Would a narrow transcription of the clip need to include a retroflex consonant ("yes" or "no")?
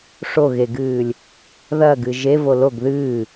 yes